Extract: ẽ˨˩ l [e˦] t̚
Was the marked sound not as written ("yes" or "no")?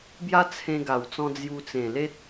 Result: no